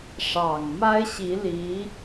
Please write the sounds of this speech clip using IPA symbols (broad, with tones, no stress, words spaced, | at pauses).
ʂɑ˨˩ŋ ma˥ɪ̯ɕi˧˥li˧˥